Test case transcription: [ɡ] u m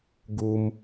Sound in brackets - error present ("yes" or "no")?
no